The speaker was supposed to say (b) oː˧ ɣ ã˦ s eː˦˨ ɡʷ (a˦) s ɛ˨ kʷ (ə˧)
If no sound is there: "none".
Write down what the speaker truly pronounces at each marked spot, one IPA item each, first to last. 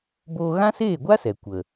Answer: b, a˦, ə˨

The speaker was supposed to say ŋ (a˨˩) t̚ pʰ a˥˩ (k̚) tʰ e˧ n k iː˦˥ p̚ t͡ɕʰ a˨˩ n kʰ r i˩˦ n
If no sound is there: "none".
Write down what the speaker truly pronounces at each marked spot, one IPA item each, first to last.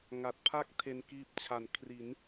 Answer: a˨˩, k̚

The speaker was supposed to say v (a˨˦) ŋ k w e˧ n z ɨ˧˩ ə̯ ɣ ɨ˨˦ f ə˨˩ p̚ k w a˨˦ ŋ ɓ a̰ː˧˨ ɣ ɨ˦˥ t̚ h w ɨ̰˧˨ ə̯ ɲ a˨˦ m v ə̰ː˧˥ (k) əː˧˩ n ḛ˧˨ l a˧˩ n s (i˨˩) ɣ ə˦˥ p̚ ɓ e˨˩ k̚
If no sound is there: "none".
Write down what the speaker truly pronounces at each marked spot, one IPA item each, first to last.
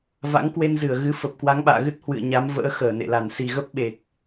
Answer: a̰˧˥, x, i˨˩

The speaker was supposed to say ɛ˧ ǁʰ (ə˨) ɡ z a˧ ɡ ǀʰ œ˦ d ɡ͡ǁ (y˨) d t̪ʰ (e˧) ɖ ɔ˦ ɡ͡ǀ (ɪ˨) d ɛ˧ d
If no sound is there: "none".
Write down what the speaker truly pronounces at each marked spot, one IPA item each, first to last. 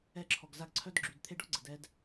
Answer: ɔ˨, y˨, e˧, ə˨

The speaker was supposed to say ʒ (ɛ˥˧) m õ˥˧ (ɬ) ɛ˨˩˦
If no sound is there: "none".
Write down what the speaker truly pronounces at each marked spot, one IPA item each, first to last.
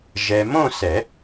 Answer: ɛ˨, s

